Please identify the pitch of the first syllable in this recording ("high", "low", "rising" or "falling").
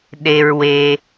low